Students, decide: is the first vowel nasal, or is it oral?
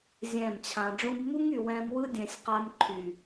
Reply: nasal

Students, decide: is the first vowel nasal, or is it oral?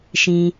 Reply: nasal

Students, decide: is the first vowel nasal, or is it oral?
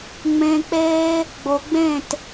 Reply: nasal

